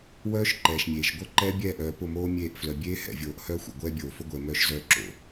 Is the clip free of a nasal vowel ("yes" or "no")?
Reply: yes